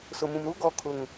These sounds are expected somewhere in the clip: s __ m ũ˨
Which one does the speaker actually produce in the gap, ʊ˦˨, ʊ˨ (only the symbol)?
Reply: ʊ˨